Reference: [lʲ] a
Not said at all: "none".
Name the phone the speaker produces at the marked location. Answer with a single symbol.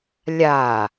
lʲ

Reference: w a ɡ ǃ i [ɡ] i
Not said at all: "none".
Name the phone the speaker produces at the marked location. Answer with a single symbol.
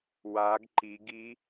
ɡ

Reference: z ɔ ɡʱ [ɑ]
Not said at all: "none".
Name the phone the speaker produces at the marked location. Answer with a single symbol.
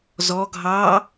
ɑ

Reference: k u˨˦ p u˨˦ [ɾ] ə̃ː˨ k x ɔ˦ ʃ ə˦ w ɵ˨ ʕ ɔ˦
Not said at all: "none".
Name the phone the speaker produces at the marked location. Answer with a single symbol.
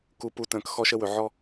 t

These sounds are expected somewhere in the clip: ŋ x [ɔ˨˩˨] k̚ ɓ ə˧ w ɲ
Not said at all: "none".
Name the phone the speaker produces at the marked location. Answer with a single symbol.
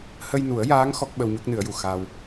ɔ˦˥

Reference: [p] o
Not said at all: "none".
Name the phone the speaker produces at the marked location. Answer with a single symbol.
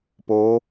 p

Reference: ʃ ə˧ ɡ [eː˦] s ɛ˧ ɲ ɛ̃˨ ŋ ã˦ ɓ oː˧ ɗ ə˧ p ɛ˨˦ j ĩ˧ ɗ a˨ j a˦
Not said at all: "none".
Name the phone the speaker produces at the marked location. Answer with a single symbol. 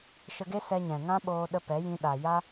e˦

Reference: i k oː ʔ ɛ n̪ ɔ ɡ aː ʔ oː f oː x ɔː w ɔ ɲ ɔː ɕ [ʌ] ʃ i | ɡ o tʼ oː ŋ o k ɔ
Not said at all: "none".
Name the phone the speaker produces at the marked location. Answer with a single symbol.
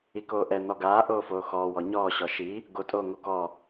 ɔ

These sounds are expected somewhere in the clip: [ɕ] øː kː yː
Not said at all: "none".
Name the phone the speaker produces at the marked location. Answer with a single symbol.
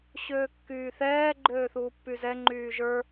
ɕ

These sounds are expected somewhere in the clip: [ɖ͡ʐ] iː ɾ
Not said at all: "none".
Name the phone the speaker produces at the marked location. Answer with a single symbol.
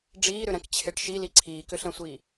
ɖ͡ʐ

